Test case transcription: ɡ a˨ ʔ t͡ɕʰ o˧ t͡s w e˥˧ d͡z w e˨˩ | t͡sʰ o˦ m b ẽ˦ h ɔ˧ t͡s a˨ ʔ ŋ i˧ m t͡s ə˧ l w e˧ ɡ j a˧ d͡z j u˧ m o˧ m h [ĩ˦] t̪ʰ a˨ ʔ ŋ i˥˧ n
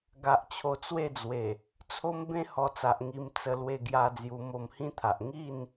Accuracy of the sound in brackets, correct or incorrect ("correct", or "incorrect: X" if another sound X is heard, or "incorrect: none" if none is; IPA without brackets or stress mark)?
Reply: correct